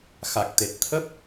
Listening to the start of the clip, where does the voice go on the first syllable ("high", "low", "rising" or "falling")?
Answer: low